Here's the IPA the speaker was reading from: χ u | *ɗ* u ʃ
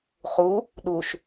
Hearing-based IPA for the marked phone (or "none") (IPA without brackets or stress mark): ɗ